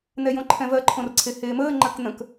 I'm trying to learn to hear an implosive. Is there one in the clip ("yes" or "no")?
no